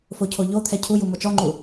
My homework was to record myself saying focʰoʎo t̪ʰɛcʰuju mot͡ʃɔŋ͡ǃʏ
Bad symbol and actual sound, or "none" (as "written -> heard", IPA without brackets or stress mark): ʏ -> u